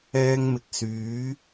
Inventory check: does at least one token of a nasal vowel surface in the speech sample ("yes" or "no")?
no